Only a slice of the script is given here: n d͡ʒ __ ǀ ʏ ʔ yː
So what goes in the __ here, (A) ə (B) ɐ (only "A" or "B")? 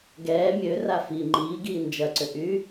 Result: B